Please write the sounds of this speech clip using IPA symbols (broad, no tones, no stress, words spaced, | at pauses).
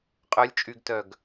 qʼœlʲ t͡ʃʼyɡtœɡ